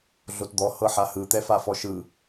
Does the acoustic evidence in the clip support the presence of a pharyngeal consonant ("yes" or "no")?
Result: yes